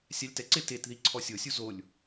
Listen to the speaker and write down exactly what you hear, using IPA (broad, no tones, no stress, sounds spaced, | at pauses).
sʲ a lʲ t ɛ ǀ ɪ t e t ð i ǀʰ ɔ sʲ o sʲ u z o lʲ